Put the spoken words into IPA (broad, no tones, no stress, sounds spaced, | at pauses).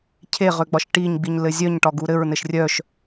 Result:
cʰ e ʁ ø ɡ͡b ɒ ʃ ʈ i ɲ ɡ͡b i ɲ l ɘ zʲ œ ɲ ʈ ɒ ɡ u ɾ ɘ ɹ n ɘ ʃ rʲ œ ʃ